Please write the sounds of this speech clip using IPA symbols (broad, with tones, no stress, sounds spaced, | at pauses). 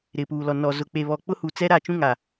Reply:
ɾ ɪ˨ p uː˨ l ɔ˨ n ɔ˨ z ʊ˨ k͡p e˨ β ɔ˨ k͡p ʊ˦ h uː˨ t͡s ɛ˦ ɾ a˦˨ t͡ʃ ũ˦ ŋ a˨